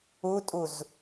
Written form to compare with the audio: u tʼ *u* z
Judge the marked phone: correct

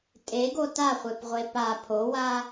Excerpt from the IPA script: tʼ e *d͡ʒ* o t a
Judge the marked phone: incorrect: ɡ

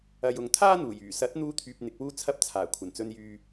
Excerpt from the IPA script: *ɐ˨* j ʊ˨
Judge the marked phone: correct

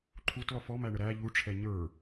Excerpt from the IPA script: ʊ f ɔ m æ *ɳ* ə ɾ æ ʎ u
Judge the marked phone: correct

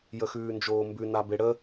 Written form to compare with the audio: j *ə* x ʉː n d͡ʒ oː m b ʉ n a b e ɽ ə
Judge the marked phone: correct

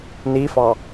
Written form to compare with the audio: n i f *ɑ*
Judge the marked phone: correct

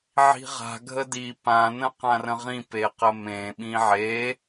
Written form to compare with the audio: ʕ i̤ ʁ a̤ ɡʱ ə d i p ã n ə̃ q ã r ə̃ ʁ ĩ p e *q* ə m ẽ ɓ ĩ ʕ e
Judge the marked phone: correct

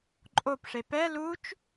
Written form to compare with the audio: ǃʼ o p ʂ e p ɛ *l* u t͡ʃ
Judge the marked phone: correct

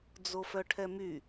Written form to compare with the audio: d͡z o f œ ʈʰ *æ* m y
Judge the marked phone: incorrect: ɛ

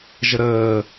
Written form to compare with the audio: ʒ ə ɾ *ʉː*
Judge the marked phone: incorrect: əː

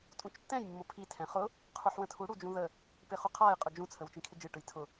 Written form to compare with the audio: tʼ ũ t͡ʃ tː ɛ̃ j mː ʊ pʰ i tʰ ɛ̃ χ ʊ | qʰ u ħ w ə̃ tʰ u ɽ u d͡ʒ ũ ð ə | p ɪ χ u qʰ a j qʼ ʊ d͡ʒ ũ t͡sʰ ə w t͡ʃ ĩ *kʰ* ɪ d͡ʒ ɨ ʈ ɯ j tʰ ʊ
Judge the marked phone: correct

